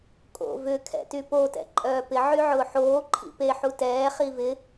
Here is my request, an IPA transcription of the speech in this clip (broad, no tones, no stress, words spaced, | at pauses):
kʼo̰ vʏkʰɛ̰ty potɛ̰ ǃʼœːpɪ ʕyʕʊːħoː ǃʰḭpeħu tɛː χivɪ